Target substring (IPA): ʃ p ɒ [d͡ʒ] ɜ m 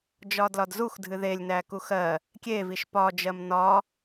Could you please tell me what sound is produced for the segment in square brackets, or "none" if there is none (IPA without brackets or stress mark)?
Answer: d͡ʒ